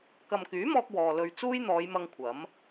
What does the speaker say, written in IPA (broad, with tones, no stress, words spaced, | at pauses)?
kɐ˨mkyː˨˥mɔː˧k̚ wɔː˨lɵ˧ɥ t͡suː˥jn̪ɔː˨˧jmɐ˧ŋ kʷʰɐ˨˥m